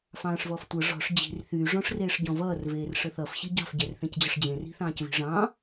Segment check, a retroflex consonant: present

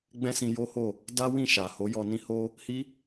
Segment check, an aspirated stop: absent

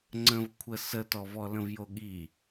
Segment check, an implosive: present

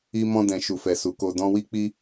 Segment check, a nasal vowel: present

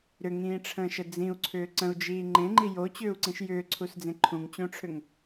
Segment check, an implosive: absent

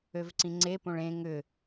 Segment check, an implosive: absent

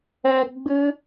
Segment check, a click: absent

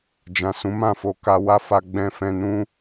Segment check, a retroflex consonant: absent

